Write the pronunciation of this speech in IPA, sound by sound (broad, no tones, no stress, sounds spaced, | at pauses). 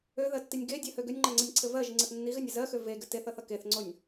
ø ð ɜ tː i nʲ ɡ e dʲ ɜ h ø ɡ ø nʲ ŋ͡ǃ ɜ ŋ͡ǀ ɘ nʲ ǀʰ ɘ v ɜ ʒ i ŋ͡ǀ ɘ θ nː i ɣ ɘ nʲ ʌ z ɜ x ø v e ɡ ɘ t e θ ʌ θ ʌ k e θ ŋ͡ǀ o nʲ